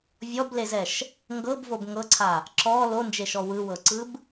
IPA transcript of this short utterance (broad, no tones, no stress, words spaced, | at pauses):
vʲɔblezɛʃ | ŋɡɤbvob ŋɤǀʰa | ǁɔ lond͡ʒeʃɔ wɯwɤǀɯb